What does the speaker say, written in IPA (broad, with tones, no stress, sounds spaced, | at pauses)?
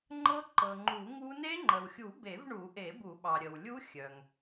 ŋ͡ǃ ɤ˦˥ ǃ ɤ˩ ŋ͡ǃ u˨˩˦ ŋ u˦˥ n e˦˥ ŋ͡ǃ ə˩ w xʲ u˨˩˦ b e˨˩˦ v ɳ u˨˩˦ ʔ e˨˩˦ b u˨˩˦ ɓ ɑ˩ ɾʲ ə˩ w lʲ u˦˥ xʲ œ˩ ŋ